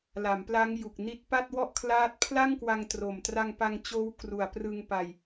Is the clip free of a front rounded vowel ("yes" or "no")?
yes